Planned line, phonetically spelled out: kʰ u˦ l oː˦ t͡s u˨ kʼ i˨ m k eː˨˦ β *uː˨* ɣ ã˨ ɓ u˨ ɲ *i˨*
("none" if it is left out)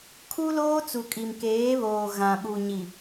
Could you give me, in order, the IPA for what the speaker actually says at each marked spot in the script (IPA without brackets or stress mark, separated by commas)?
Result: oː˨, i˨